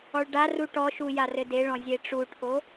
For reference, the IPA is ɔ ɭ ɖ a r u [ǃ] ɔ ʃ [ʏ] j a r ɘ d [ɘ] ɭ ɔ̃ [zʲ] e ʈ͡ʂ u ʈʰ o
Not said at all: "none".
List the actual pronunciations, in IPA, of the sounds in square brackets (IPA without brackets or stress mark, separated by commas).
ʈ, u, e, zʲ